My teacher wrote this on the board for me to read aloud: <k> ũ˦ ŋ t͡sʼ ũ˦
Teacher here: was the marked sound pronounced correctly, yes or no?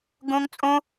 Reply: no